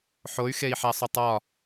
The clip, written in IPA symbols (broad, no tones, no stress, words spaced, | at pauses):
ħoy̯xei̯ħæsˤotˤ ɒ